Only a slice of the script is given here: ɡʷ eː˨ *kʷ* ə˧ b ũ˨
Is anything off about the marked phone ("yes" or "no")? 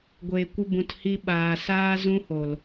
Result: no